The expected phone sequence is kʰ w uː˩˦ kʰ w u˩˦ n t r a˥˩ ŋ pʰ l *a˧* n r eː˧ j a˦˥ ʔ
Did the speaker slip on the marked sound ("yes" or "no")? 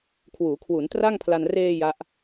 no